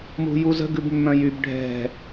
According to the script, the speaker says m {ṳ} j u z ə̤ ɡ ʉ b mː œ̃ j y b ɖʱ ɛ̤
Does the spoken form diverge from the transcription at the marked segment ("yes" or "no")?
no